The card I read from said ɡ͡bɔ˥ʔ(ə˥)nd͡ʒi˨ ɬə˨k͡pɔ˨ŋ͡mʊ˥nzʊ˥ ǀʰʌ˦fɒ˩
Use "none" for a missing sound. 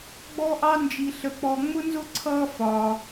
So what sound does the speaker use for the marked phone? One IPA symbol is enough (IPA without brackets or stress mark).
ɑ˥